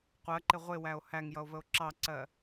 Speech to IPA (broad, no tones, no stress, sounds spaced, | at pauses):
qʷ ɜ ǃ ɪ ʁʷ ɪ w æ o̯ h æ ŋ j ʌ o̯ v ə o̯ ǁ ɑ ǀ ɜ